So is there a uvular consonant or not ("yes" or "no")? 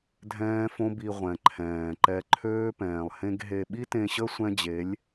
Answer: yes